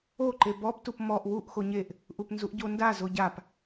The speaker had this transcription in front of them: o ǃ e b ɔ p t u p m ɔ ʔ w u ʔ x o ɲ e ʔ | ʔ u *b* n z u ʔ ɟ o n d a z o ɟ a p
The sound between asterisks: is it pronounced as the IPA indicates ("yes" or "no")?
no